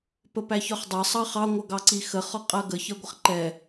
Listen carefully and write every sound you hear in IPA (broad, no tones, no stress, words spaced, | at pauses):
pəpæçɒχdˤɑ sˤɑχɑ ŋʷʌɡɑǀixə χɒqʼɜɡə çɜɡʷəχǃɛ